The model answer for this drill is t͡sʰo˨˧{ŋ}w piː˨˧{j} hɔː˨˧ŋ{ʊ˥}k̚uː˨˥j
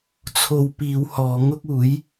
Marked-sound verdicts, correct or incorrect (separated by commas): incorrect, incorrect, correct